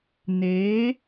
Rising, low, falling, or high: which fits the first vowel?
rising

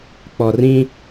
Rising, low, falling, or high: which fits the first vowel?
low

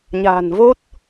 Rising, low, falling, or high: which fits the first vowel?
low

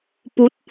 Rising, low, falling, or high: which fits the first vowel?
rising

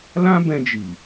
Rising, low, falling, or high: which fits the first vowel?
high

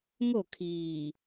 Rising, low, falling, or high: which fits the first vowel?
falling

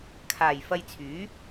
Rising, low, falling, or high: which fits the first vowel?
low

